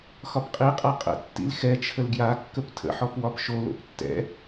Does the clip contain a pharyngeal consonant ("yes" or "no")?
yes